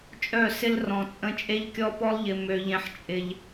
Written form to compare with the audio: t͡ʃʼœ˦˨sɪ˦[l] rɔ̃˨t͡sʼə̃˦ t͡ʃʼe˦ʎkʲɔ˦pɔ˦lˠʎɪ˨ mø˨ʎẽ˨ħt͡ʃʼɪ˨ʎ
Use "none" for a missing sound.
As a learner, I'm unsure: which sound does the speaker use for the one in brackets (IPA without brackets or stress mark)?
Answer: l